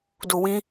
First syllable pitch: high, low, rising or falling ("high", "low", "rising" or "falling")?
low